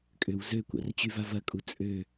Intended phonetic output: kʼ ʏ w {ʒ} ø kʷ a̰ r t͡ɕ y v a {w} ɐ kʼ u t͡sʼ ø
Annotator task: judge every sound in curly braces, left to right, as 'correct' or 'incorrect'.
incorrect, incorrect

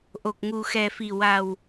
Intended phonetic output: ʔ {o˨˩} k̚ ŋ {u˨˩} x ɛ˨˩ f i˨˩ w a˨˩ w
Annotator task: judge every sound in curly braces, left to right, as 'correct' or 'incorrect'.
correct, correct

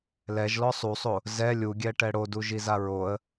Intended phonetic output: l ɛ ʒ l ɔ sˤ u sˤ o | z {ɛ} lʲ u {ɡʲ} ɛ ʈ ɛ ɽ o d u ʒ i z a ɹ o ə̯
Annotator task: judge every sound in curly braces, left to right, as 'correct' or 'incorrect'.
correct, correct

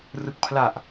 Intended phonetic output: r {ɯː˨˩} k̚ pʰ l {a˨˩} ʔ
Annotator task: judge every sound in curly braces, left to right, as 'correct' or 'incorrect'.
incorrect, correct

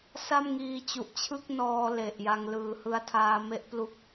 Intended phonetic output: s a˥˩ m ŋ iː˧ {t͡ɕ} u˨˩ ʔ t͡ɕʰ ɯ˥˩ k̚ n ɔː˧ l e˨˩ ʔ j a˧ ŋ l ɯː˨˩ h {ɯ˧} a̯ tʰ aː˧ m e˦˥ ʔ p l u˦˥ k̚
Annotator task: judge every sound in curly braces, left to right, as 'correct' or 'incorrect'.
correct, correct

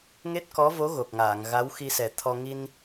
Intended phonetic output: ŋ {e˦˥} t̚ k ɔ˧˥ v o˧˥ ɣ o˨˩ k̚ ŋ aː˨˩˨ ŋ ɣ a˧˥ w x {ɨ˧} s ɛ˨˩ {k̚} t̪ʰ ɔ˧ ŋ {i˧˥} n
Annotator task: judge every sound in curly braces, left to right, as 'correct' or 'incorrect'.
correct, incorrect, incorrect, incorrect

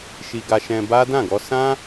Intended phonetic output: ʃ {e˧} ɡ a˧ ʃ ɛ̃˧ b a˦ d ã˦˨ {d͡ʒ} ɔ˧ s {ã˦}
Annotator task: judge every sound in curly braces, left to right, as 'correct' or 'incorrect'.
incorrect, incorrect, correct

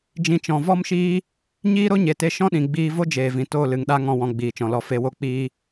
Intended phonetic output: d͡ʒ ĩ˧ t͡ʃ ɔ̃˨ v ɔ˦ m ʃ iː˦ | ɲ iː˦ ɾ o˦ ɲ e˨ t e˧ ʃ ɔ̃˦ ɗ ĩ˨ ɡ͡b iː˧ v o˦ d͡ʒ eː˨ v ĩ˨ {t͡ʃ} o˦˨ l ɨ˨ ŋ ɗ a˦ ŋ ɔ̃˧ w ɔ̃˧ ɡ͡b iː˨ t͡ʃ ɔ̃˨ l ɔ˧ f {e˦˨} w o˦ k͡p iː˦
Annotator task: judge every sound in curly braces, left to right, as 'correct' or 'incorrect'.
incorrect, incorrect

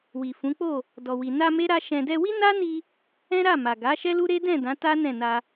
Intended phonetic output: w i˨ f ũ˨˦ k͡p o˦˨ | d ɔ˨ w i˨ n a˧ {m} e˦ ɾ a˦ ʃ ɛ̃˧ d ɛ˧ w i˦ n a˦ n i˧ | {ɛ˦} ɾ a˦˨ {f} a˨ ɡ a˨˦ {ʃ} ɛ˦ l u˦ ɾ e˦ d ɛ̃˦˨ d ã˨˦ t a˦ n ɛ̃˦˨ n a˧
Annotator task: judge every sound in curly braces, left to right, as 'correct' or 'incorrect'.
correct, incorrect, incorrect, correct

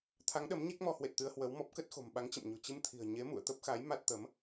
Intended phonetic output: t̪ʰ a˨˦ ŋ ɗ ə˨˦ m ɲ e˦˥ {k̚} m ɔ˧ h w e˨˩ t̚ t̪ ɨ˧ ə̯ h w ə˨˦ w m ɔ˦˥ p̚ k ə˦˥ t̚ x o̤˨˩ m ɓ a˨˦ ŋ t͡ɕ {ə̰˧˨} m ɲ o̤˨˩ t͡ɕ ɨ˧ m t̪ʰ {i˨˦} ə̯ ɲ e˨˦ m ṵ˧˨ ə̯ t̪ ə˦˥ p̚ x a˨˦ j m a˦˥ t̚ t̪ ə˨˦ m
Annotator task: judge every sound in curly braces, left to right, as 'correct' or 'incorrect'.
correct, correct, incorrect

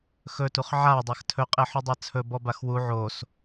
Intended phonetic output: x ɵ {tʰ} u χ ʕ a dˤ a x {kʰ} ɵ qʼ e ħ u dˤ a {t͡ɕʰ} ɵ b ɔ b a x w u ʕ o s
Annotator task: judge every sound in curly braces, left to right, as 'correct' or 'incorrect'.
incorrect, incorrect, incorrect

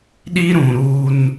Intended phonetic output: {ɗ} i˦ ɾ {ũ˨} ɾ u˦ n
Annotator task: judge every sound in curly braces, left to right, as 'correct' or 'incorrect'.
correct, correct

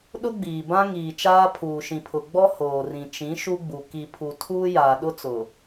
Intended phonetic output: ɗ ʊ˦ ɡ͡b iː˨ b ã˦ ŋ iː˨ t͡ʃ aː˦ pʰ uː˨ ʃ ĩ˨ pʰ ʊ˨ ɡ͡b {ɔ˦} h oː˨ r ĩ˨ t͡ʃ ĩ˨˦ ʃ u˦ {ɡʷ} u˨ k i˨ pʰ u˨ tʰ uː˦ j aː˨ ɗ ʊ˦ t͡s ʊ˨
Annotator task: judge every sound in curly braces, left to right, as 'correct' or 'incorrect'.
correct, incorrect

